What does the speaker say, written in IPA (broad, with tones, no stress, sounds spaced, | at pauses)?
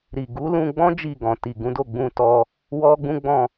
ɾ i˨ ɡ u˨˦ l ũ˧ ɡ͡b ɔ̃˦ d͡ʒ i˦˨ ɡ ɔ̃˨ t i˨ ɡ ũ˨˦ d o˦˨ ɡ͡b ũ˧ t ɔ˧ | w ɔ˦ ɡ͡b ũ˦ ɡ͡b ɔ̃˦˨